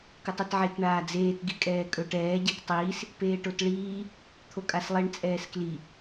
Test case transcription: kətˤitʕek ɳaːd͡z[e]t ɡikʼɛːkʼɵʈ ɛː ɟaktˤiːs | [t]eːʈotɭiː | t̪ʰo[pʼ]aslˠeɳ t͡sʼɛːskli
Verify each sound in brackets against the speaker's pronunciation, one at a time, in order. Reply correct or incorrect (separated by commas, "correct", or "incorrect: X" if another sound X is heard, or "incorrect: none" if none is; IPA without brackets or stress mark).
incorrect: eː, incorrect: p, incorrect: kʼ